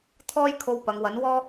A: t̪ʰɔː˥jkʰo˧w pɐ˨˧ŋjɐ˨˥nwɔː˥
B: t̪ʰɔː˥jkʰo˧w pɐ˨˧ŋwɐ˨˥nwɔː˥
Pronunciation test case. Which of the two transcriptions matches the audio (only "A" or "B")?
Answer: B